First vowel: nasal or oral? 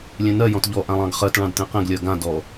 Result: nasal